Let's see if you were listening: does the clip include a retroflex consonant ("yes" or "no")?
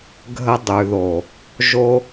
no